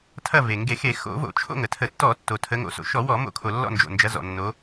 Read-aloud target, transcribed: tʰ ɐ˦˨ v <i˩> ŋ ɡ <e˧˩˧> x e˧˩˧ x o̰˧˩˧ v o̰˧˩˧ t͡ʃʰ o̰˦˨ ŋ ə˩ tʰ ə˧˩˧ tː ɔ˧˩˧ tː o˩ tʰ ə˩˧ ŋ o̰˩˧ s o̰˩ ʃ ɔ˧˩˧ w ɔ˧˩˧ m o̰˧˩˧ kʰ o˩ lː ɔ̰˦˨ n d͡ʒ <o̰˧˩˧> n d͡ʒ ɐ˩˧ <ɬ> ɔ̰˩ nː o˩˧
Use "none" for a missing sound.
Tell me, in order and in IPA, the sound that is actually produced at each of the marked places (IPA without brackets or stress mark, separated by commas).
e˩, e˧˩˧, o̰˩, z